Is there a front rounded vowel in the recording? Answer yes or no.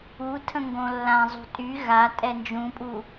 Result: yes